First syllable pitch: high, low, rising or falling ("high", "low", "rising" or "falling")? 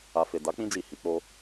low